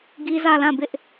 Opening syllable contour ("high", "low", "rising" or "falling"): high